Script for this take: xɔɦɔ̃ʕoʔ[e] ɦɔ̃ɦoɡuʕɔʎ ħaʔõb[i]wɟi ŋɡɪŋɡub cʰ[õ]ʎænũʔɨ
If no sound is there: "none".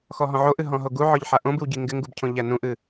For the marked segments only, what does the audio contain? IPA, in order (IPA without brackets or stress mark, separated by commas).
ɨ, ɨ, õ